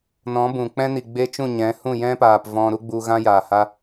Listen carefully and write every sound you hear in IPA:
nɔ̃˨˦bũ˨ k͡pɛ̃˧ni˨ ɡ͡be˦ t͡ʃũ˦˨ ɲɛ̃˨˦ hũ˦˨jɛ̃˦paː˨p vɔ̃˧ ɾu˦ɡ͡bu˧ɣã˦jaː˨ ha˦

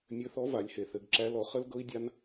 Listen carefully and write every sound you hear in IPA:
mʲɘ˧˥θɔ˧˥va˩˧lʲhe˩ θɘ˩˧ɡǁæ˧˥lɔ˩˧ χə˥l ɡɤ˥i̯dʲa˥n

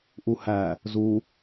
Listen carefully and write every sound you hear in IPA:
ʔuhæ | zu

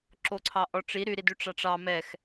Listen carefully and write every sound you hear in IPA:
ǁoǀʰɑʔɔʈ͡ʂi ɾy ɾidyʈ͡ʂɑʈ͡ʂɑ mɛx

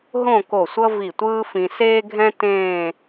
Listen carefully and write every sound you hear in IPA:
ɦõ˥˧ko˧˩sʷʌ˥ vi˧˩tʷɯː˥fĩ˧ seː˥ɡʱɛ̃˥ tẽː˥˧

